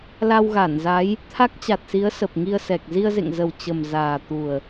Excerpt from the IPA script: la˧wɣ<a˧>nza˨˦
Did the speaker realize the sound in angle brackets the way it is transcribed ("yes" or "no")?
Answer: no